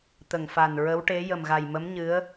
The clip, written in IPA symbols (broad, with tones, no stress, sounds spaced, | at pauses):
t̪ ə˨˩ ŋ f a˨˩ n ɹ ə˧˥ w ʈ e˧˥ j ə˨˩ m ɣ a˨˩ j m ə˧˥ m ɲ ɨ˧˥ ə̯